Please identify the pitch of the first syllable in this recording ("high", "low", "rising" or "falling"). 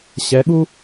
rising